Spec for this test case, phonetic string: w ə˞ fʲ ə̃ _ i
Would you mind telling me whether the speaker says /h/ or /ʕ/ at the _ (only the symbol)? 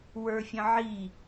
ʕ